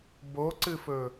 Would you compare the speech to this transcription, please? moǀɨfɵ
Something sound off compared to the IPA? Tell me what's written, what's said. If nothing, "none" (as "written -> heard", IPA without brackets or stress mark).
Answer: m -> b